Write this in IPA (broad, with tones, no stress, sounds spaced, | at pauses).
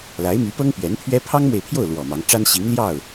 l a˧˥ ɪ̯ m y˧˥ p ɤ˥ ŋ p ɥ ɛ˧˥ n pʰ ɥ ɛ˥ pʰ ɑ˥ ŋ m w e˨ ɪ̯ pʰ j o˥˩ ʊ̯ l w ɔ˨˩ m ɑ˧˥ ŋ ʈ͡ʂ a˥ n ɕ i˧˥ ŋ l j ɑ˥˩ ʊ̯